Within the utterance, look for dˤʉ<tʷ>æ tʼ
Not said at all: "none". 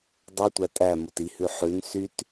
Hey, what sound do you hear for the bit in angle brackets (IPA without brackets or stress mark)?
tʷ